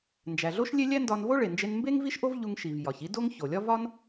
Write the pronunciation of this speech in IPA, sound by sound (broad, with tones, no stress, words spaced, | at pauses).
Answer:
nd͡ʒæ˩ɮo˥ʃlʲe˥ lʲæ˥ndɒ˧nvo˥ ɭe˩nd͡ʒe˧n mbe˥ŋ vi˥ʃʔo˥v ʎu˧ŋʃi˩v jɒ˩çi˥do˥ŋ ço˩lʲɒ˥ vɒ˥n